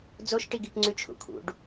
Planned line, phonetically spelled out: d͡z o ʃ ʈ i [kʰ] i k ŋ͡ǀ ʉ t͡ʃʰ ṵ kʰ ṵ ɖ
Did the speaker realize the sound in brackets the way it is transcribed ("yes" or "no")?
no